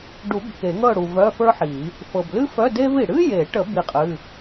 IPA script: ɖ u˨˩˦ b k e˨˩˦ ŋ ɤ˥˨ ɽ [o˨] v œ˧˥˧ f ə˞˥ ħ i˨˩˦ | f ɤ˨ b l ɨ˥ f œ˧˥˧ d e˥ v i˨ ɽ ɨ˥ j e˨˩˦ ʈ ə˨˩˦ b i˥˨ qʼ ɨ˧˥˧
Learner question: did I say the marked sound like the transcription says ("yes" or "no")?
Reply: no